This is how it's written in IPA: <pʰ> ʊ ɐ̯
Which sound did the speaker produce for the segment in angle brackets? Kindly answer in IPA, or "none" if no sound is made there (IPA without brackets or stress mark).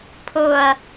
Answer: pʰ